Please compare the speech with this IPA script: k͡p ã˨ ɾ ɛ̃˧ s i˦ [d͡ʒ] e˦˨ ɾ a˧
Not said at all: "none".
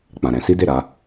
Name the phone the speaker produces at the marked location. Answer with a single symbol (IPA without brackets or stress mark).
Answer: d